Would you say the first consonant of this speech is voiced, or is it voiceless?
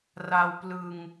voiced